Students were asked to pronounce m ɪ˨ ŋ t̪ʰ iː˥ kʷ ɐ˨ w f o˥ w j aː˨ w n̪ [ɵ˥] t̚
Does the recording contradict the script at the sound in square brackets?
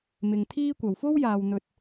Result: yes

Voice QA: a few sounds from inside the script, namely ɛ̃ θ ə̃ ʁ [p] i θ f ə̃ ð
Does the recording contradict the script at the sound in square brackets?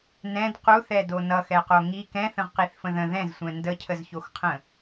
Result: yes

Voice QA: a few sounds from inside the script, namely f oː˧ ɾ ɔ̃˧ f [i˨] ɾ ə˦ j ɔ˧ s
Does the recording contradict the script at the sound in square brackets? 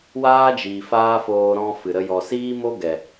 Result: yes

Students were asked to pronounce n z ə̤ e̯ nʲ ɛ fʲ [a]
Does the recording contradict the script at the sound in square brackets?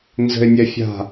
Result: yes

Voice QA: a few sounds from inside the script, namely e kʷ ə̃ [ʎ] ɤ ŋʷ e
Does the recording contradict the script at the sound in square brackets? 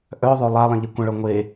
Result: yes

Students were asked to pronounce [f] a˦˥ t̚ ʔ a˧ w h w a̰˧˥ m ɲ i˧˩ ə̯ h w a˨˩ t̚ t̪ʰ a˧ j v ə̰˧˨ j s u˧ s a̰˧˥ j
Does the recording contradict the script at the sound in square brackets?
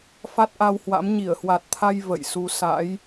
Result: no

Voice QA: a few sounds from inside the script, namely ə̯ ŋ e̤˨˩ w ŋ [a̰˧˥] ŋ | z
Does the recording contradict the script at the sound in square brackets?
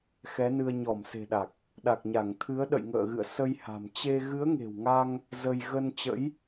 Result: yes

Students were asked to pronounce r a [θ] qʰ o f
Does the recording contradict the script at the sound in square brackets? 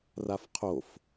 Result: yes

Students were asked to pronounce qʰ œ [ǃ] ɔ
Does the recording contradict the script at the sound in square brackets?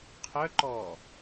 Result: no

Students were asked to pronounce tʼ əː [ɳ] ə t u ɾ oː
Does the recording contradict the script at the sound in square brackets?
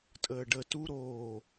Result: yes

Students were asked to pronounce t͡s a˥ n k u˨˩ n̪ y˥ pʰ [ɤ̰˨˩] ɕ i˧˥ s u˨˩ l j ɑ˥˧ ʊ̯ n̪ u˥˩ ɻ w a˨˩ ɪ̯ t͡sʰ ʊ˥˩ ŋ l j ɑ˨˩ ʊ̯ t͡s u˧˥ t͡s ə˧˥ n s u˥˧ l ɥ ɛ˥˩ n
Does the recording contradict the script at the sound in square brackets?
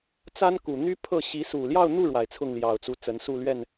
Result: yes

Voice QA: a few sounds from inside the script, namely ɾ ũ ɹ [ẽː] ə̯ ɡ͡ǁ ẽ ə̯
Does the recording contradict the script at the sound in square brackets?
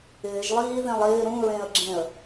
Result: yes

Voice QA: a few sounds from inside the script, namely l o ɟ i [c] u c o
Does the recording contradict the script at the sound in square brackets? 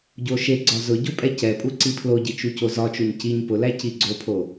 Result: yes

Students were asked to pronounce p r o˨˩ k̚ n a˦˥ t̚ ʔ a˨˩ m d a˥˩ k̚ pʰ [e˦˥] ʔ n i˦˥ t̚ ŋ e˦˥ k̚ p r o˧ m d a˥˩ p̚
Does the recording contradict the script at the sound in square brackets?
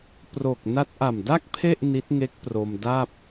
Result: yes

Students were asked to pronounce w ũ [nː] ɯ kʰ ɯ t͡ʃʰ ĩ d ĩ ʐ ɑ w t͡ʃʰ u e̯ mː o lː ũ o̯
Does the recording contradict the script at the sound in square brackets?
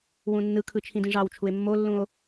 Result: no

